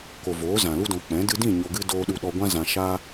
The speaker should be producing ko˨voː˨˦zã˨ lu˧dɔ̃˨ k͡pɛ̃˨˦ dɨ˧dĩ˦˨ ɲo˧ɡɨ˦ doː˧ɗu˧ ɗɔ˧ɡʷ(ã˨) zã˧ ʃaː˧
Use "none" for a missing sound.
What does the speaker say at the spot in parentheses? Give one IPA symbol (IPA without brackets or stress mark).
ã˦